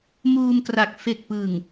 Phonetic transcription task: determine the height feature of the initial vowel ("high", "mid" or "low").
high